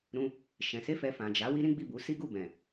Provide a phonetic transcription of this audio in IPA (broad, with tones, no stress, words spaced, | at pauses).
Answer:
ɾũ˧ | ʃɛ̃˨ se˧ fɛ˨ fã˨d͡ʒa˨˦ wi˦ɾĩ˦ɡ͡bi˦˨ bu˨˦ si˦ɡu˦˨ bɛ̃˨